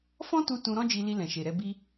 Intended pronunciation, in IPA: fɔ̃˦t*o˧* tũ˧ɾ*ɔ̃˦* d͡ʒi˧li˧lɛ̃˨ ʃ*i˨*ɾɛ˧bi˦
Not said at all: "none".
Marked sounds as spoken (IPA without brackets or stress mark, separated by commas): u˧, ɔ̃˦, e˨